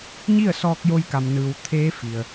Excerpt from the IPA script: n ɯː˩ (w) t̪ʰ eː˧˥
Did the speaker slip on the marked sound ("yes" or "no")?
no